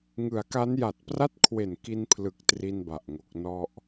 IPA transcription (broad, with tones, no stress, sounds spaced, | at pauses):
ŋ ɯ˩˦ a̯ k a˦˥ n j a˨˩ t̚ p r a˥˩ t̚ kʰ w e˨˩ n k i˧ n pʰ l ɯ˨˩ k̚ t r i˧ n b a˨˩ ʔ ŋ o˨˩ k̚ n ɔ˥˩ ʔ